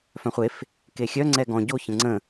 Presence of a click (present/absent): present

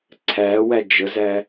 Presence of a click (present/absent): present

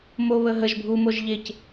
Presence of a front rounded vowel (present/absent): absent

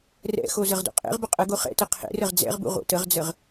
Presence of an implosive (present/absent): absent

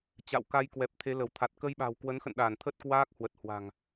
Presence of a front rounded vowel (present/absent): absent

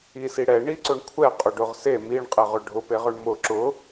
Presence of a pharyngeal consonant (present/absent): absent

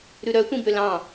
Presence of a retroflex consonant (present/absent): absent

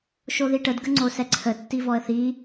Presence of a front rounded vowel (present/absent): absent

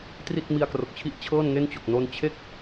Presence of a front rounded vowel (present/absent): absent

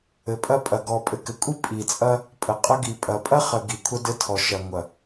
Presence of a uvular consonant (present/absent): present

